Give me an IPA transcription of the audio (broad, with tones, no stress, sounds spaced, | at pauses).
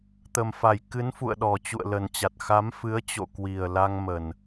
t̪ ə˨˩ m f a˨˩ j k ɨ˨˦ n f ṵ˧˨ ə̯ ɗ ɔ˨˩ t͡ɕ ṵ˧˨ ə̯ l ə˨˩ n t͡ɕ a˨˩ t̚ x a˨˦ m f ɨ˨˦ ə̯ t͡ɕ o̰˧˨ k w i˨˩ ə̯ l a˧ ŋ m ə˨˩ n